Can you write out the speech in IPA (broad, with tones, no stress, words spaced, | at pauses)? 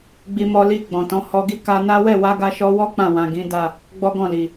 ɡ͡bi˧mɔ˧ li˧ ɡ͡bɔ̃˨tɔ̃˨˦ hɔ˧ɡi˦ ka˧na˦ wɛ˦˨wa˧ɡa˧ ʃɔ˧wɔ˦ k͡pã˦˨wã˨ɡĩ˨˦da˦˨ | ɡ͡bɔ˦ɡɔ̃˦˨li˨